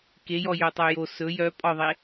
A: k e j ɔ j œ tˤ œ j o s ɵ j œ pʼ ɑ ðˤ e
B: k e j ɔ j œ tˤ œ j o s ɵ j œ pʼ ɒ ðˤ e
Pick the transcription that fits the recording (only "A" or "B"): B